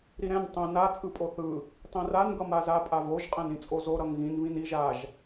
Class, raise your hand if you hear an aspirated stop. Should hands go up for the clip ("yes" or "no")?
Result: no